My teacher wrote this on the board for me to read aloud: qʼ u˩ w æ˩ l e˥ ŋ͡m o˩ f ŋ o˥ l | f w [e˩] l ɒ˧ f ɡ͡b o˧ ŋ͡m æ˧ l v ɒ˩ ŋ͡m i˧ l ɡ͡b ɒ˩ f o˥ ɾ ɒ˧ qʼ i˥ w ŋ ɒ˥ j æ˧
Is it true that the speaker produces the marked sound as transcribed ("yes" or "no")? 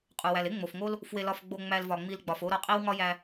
no